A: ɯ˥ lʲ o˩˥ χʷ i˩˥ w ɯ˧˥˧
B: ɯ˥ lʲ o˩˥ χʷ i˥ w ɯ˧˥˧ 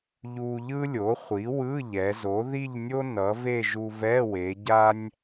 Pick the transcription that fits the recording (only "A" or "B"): A